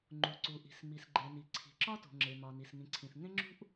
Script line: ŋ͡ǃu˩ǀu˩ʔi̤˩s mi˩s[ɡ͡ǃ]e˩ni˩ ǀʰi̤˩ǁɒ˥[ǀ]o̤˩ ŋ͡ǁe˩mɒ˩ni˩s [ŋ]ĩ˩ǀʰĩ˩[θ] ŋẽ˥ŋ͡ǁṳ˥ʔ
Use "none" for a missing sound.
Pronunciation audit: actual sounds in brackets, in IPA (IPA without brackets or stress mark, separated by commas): ɡ͡ǃ, t, ŋ, θ